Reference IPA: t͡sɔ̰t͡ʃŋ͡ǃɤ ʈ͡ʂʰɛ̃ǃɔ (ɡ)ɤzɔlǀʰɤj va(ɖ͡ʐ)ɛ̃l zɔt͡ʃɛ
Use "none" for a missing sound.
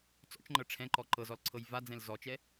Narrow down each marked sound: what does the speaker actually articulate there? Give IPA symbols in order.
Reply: ǃ, d͡z

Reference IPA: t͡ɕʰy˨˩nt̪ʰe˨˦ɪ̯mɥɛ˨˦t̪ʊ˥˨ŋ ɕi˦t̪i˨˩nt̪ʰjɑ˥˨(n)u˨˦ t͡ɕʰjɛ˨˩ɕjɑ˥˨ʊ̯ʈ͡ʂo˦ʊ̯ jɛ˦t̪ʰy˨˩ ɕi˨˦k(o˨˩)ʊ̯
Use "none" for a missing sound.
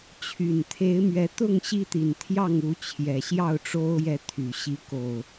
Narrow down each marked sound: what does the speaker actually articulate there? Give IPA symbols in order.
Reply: ŋ, o˨˩

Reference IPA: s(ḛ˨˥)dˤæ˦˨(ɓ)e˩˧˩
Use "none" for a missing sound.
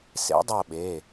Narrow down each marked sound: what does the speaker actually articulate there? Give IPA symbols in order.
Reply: ḛ˨˥, ɓ

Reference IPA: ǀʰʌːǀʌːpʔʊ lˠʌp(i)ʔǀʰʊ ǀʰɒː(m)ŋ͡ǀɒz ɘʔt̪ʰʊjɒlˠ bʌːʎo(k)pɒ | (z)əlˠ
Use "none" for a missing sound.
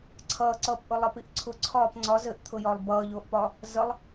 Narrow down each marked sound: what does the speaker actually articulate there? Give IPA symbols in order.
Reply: i, p, ʔ, z

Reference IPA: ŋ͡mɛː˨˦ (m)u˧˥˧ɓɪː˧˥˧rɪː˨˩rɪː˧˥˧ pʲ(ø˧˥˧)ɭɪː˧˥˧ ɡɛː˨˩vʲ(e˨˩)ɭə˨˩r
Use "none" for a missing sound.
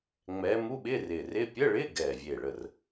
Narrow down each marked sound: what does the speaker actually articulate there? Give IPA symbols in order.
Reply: m, ə˧˥˧, e˨˩

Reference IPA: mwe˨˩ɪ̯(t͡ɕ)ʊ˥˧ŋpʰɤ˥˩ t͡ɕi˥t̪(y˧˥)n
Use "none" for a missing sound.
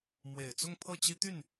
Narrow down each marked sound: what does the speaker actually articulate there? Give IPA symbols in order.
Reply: t͡s, y˥˩

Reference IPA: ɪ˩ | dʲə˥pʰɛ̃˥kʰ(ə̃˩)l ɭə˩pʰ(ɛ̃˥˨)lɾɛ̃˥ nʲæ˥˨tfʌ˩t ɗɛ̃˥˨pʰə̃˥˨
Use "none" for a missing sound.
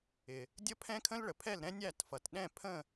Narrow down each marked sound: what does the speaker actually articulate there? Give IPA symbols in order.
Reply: ə̃˥, ɛ˥˨

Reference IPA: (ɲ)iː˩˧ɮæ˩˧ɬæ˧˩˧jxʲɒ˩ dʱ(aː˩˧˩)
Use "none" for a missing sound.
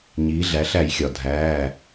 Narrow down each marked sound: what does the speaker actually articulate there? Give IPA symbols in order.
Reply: ɲ, æː˩˧˩

